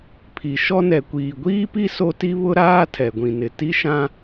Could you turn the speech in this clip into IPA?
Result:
pʰ i˨ ʃ ɔ˦ n ɛ˨ kʷ iː˨ ɡʷ iː˦ p i˦ s o˦ t i˦ β ʊ˦ ɾ aː˦ tʰ ɛ˨ ɡʷ ĩ˨ n ɪ˨ t i˦ ʃ ã˦

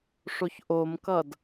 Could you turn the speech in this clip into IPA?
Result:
ʂ o ç ʔ o m k ʌ d

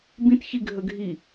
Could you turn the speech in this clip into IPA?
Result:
b ĩ t ç i ɡʱ ə ɡʱ i

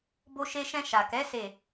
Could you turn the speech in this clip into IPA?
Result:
b o˧ ʃ e˧ ʃ ɛ̃˧ ʃ a˨ k ɛ˨˦ s e˦˨

